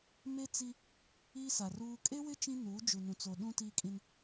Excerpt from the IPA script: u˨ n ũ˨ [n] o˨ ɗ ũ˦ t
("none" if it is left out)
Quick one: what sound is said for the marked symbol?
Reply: t͡s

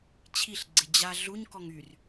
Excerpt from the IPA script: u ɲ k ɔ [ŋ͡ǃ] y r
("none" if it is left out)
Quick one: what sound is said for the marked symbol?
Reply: ŋ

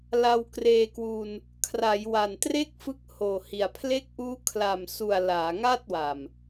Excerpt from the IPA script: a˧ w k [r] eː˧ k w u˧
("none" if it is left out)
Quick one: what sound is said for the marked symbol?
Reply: r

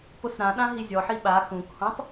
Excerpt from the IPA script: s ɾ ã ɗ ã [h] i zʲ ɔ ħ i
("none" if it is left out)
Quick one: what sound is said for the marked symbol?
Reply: ɦ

